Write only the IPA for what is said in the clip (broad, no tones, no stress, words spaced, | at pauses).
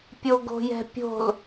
pʲoɡo̤jɛ̤pʲo̤l